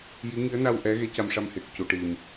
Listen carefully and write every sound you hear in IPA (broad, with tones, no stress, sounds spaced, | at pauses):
j i˧˥ ŋ i˧˥ ə̯ n a˧ w ʔ ɛ˧˥ ɣ e˧˥ c a˧ m ʂ a˧ m h e˨˩ k̚ c u˨˩ ʈ i˨˩ m